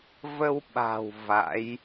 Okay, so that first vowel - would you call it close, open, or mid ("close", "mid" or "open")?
mid